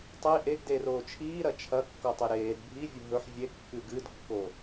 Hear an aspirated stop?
yes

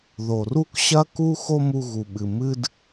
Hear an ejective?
no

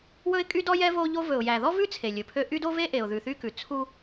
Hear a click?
no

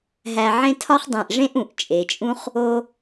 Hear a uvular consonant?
yes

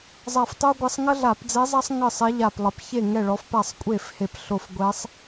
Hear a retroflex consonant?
yes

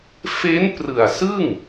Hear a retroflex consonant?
no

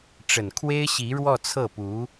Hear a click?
no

